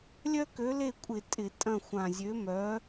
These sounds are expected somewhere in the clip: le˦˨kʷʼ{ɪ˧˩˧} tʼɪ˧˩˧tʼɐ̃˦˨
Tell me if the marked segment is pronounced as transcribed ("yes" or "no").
yes